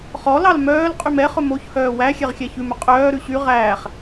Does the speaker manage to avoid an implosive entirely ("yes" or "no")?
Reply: yes